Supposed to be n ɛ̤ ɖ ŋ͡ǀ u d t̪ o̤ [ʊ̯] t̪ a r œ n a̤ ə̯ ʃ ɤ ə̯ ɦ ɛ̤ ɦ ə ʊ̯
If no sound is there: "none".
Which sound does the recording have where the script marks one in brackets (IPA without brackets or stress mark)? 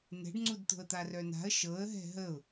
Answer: ə̯